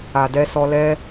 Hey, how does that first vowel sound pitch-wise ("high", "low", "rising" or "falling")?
low